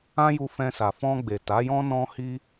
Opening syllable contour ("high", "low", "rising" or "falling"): high